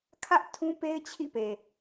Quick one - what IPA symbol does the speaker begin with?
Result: kʰ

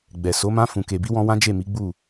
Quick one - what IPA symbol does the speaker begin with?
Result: ɡ͡b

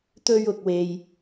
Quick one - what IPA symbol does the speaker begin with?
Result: t̪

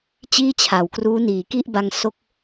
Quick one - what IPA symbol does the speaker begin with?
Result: t͡ɕ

